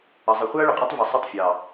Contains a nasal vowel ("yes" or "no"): no